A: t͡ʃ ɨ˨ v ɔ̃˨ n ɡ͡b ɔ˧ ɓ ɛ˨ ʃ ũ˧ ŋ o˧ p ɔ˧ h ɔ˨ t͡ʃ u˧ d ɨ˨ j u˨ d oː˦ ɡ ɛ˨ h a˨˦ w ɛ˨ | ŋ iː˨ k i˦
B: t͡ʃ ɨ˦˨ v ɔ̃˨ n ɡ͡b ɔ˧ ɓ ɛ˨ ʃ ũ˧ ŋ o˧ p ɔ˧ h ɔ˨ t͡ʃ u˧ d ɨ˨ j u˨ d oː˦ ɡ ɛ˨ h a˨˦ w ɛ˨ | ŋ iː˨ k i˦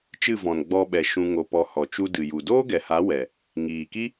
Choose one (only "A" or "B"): B